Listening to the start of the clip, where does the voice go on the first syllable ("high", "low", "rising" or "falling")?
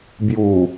low